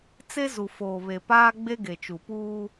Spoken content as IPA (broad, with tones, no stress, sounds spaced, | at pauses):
t͡s e˦ z u˨ f oː˨ β e˨ p aː˦ ɡ͡b e˦ ɡ e˨ t͡ʃ u˨ p uː˦